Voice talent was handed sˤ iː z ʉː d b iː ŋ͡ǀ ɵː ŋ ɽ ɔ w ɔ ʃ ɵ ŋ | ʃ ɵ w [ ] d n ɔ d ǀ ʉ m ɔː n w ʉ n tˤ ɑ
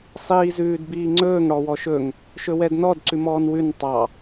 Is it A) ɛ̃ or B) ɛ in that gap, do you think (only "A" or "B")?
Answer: B